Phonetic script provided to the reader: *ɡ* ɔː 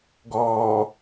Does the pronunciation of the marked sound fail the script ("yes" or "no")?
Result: no